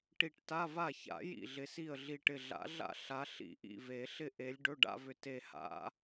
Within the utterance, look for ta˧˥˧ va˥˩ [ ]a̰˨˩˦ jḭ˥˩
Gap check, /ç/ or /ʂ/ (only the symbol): ç